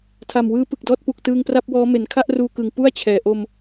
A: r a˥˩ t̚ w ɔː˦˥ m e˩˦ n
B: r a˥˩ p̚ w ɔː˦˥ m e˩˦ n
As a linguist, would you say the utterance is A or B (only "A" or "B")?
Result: B